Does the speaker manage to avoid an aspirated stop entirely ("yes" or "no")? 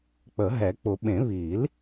yes